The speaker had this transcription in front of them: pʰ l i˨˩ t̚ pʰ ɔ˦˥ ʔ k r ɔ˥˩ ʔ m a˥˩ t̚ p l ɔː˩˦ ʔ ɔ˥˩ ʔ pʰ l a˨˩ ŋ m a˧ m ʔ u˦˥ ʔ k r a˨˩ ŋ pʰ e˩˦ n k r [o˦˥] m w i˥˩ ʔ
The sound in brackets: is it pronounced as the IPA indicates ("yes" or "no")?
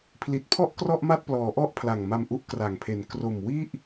no